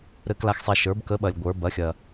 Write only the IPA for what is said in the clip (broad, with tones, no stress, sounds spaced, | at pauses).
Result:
ɾ ɘ˩˥ k l a˨ x sˤ ɛ˨ ʃ ə˞˩˥ b k ə˩˥ ɓ ɐ˨ lʲ ɡʷ ə˞˩˥ b ɐ˩˥ xʲ ɐ˨